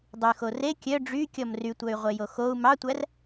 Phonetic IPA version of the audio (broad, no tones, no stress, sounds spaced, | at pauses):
dˤ y x o r e kʲ œ ɖ͡ʐ y kʲ ɔ m r y tʷ œ y̯ ʁʷ e j o x o u̯ m ɑ tʷ æ r